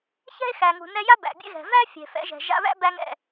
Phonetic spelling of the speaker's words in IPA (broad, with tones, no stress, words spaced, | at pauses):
çɛ̤˥e̯ xæ˩ŋṳ˩nɛ˧ja˥ bæ̰˩bʲɛ̰˥ɣɛ̤˩ væ˥ fʲɛ̤˩fɛ̰˧ʒɛ̤˩ ʒa̰˧βæ̰˥bæ˧ŋɛ̰˩